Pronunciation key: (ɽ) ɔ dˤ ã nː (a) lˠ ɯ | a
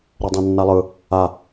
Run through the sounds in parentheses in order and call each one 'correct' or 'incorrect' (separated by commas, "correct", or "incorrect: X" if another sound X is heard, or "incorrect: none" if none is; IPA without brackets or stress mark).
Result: incorrect: ɾ, correct